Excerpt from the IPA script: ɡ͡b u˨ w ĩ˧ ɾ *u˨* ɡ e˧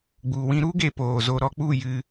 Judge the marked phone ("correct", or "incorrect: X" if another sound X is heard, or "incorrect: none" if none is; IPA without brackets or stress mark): incorrect: u˦